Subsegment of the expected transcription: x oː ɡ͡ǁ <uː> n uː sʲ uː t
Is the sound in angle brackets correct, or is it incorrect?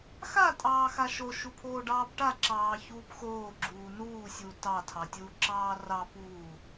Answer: correct